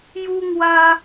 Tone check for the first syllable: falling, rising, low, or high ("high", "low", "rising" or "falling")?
high